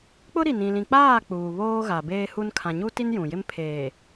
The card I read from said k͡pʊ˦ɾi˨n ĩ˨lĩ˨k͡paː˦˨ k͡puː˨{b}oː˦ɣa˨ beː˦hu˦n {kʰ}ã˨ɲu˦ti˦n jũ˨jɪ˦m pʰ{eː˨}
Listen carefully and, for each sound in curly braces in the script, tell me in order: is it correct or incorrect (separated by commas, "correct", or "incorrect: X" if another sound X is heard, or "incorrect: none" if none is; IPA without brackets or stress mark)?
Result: incorrect: β, correct, correct